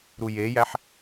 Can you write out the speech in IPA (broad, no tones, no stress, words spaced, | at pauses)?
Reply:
ɾujejæħ